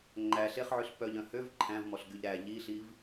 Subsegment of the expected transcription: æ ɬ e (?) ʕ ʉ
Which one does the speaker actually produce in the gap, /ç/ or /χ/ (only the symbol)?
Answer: χ